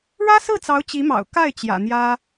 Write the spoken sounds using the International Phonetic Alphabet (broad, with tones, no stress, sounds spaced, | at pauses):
ɻ ä˥ s ɹ̩˥˩ t͡s ɑ˧˥ ʊ̯ t͡ɕ i˧˥ m ɑ̰˨˩ ʊ̯ k a˥˩ ɪ̯ t͡ɕ j ä̰˨˩ n̪ j ä˥